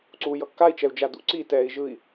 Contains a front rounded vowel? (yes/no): no